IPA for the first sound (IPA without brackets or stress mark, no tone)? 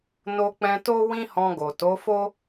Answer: n